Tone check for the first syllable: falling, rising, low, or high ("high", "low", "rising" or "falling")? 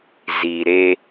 low